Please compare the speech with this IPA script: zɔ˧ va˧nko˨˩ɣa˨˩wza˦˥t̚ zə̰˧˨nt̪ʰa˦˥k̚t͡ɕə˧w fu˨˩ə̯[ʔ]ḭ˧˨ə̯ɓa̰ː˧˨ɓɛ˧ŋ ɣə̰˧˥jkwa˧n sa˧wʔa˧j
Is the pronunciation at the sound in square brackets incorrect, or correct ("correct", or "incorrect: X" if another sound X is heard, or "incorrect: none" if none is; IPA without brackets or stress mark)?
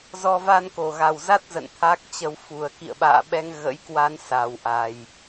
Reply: incorrect: k